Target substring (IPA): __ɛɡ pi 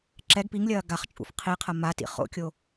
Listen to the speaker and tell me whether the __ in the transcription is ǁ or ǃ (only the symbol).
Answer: ǁ